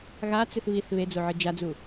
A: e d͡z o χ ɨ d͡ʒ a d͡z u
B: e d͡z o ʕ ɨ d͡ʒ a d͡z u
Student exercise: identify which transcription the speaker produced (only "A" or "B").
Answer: B